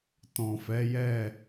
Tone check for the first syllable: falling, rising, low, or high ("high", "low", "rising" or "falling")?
low